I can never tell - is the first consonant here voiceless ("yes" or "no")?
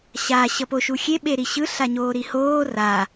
yes